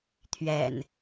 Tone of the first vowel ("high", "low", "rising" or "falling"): low